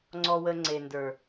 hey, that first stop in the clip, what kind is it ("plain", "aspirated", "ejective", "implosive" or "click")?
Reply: click